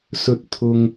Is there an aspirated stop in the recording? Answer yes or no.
yes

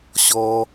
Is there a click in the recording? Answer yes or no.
no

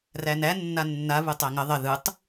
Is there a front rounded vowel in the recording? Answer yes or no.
no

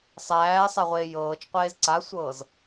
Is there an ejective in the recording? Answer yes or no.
no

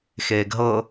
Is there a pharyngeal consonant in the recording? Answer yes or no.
no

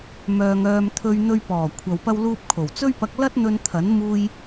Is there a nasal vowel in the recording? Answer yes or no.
no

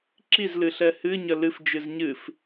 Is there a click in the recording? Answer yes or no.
yes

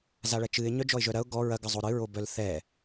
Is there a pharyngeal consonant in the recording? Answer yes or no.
no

